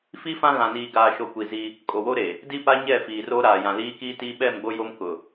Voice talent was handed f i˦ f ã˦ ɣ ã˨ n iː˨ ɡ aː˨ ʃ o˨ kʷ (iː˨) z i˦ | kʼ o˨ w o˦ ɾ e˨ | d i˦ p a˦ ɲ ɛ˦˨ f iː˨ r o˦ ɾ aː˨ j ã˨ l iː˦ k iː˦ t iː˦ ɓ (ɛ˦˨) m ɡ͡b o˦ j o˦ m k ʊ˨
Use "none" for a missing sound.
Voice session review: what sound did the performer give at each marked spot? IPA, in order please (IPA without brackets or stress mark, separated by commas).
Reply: i˨, ɛ˦˨